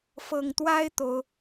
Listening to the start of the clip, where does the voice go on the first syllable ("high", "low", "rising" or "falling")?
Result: low